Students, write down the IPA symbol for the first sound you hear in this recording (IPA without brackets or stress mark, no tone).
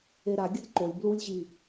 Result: e